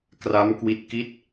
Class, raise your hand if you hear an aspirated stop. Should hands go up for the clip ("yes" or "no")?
no